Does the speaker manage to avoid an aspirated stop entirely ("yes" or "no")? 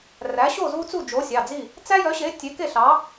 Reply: yes